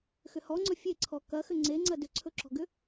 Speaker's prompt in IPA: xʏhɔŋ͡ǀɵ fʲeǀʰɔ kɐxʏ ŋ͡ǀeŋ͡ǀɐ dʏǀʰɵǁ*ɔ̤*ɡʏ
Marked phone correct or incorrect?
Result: correct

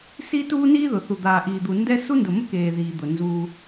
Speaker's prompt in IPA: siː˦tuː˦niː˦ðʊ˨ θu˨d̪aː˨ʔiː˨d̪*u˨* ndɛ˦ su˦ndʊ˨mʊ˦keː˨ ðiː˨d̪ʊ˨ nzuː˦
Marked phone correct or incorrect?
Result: correct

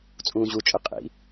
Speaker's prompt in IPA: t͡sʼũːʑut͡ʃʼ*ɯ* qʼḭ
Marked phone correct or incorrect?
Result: correct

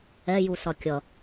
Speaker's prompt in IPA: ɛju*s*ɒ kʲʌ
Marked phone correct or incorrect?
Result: correct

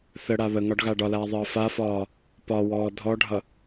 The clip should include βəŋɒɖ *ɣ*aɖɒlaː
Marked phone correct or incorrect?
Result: correct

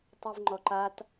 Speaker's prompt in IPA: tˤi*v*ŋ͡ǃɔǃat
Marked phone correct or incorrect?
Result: correct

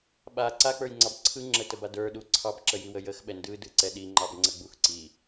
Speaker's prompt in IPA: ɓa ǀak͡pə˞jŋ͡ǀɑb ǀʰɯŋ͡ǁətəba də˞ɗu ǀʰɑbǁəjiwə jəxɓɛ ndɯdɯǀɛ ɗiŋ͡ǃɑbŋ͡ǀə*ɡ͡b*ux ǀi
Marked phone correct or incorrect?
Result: correct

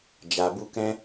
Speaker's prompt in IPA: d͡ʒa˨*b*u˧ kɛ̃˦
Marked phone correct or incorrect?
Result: correct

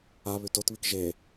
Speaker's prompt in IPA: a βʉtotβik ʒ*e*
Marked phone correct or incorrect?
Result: correct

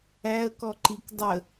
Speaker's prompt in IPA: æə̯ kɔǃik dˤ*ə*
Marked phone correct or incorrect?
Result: correct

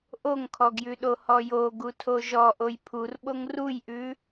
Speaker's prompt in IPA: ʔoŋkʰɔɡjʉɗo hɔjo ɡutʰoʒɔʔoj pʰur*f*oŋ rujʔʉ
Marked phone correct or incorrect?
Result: incorrect: ɓ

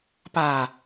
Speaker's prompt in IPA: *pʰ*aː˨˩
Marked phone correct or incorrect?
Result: incorrect: p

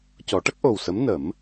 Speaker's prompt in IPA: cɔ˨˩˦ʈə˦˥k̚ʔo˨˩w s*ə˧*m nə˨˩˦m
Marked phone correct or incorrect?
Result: incorrect: ə˧˥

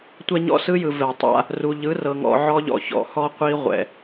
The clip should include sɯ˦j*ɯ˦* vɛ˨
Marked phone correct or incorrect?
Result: incorrect: ɯ˨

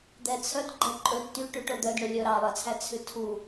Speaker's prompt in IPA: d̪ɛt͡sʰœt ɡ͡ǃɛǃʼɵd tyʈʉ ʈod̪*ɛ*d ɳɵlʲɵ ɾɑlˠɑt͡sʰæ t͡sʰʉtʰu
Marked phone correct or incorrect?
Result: incorrect: œ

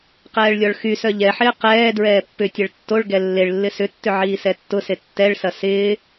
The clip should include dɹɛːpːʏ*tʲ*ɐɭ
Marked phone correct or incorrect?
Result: correct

